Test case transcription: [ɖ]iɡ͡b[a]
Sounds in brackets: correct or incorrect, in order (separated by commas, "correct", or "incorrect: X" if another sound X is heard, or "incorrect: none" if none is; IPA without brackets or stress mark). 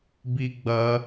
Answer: incorrect: b, incorrect: ɐ